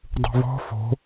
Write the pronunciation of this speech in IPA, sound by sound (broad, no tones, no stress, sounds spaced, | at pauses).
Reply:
dˤ ṳ v ɔ̤ f o̤